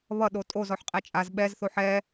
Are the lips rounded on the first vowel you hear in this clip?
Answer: no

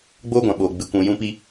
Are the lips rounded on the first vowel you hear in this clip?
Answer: yes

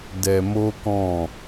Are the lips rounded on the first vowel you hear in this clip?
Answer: no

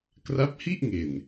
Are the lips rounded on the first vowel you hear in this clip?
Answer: no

